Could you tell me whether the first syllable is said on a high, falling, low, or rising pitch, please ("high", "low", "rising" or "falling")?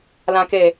low